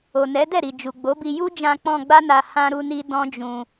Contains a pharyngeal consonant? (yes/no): no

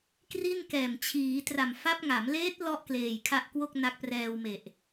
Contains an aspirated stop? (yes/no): yes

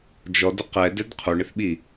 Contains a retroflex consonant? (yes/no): yes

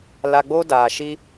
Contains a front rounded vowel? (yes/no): no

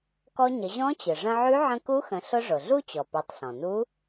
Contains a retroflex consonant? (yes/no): yes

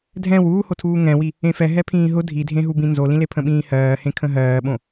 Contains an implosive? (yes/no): yes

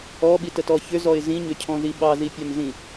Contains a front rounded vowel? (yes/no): yes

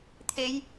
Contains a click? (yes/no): no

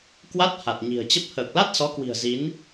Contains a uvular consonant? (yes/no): no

